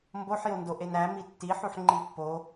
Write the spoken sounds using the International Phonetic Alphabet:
mboħjondo ʔenæ mitːiħuħ ŋ͡ǃipːo

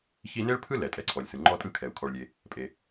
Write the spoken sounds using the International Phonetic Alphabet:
çi˦ne˥ɭpʰɯ˥ lɛ˩tʼɛ˨ǀʰɔ˩lʲsɯ˩ ŋ͡ǃɔ˦tʼɯ˦kʰɛ˩u̯ kʰɔ˨ɭlʲe˨ | pʼe˩

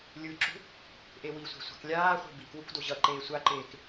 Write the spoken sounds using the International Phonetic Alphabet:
lʲɯǁṳ | ʔewisʷa̤ sʷa̤klʲaːχʷe̤ bikwuk doʑʌǃeː sʷaǃeːk

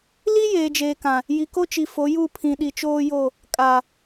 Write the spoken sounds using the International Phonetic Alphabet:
li˦ jeː˨d͡ʒeː˨kã˨ | ji˨ko˦ t͡ʃi˨fo˨˦ ju˦˨pʰĩ˨ ɗi˨t͡ʃoː˦jo˦˨ | kʼa˨

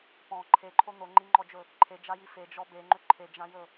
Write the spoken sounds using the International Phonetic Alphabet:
pɔ̃ ǃʰeǃʰo n̪oŋ͡ǃiŋ͡ǃɔd͡ʒɵ | ǃʰed͡ʒaji fed͡ʒɔ beŋ͡ǃʏ ǃʰed͡ʒãjɵ

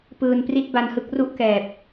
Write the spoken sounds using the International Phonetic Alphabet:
pɯː˨˩npri˦˥t̚ ba˧nhɯ˦˥k̚ ru˥˩ʔkɛː˨˩p̚

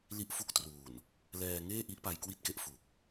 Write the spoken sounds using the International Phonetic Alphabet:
li˦˥ʔfu˦˥k̚truː˨˩n | lɛː˧ ŋeː˥˩ʔi˦˥ʔpa˧j kwi˥˩t̚ke˦˥ʔ fu˨˩k̚

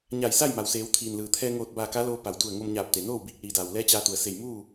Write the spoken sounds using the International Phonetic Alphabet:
ɲa˧˩jsa˥˨jma˩wseː˩˧w t̪ʰiː˩nlɯː˩t̪ʰɛː˧ ŋoː˧˩t̚ baː˧˩ka˧˥loː˧ pa˩wdu˧˩ə̯ ŋo˧mɲaː˧˩p̚t̪e˩noː˥˨w biː˧˩k̚liː˩daː˩wlɛː˧˥ t͡ɕaː˧t̪u˩ə̯se˧˩j muː˥˨

